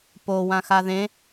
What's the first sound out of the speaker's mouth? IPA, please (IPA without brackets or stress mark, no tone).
p